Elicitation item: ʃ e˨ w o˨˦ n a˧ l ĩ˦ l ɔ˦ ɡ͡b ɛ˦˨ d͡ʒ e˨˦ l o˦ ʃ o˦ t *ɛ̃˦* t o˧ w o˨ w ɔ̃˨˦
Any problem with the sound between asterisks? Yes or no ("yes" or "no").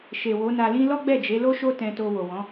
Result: yes